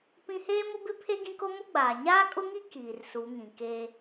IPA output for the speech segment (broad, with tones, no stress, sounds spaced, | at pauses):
p ĩ˦ h eː˦ m ʊ˦ b ɪ˦ pʰ e˦ ɡ ĩ˦ k o˦ m o˦ ɡ͡b aː˨ ɲ aː˦ kʼ ʊ˦ ŋ i˦ k iː˨ r s u˨˦ ŋ ĩ˨ k e˦